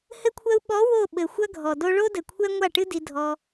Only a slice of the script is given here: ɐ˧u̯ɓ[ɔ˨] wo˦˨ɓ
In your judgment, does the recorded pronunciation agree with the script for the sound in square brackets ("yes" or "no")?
no